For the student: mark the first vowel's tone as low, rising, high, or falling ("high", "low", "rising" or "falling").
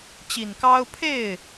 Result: low